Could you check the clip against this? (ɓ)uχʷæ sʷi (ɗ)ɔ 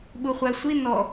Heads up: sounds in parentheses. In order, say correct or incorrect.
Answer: correct, incorrect

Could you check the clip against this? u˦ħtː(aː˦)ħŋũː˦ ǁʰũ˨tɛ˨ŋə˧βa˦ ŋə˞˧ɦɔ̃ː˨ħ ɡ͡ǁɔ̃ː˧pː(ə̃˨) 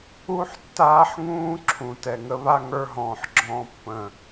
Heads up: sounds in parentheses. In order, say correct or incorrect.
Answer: correct, correct

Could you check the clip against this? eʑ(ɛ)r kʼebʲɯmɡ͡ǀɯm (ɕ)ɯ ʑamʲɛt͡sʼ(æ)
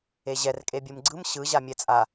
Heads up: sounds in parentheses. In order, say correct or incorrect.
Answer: correct, correct, incorrect

